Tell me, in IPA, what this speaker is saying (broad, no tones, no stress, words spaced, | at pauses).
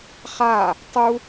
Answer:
χa | tˤu